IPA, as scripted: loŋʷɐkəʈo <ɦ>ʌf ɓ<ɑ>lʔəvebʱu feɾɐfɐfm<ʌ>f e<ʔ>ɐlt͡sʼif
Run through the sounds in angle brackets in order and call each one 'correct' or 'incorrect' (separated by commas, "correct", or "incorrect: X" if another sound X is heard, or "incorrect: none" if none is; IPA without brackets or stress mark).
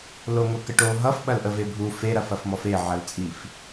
correct, incorrect: ɐ, incorrect: ɔ, incorrect: ʕ